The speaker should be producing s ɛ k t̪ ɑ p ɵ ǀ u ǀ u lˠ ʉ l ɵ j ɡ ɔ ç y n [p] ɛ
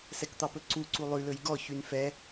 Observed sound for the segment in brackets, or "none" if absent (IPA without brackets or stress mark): f